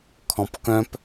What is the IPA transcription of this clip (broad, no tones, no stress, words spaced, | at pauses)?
kʰɔ̃pkœ̃p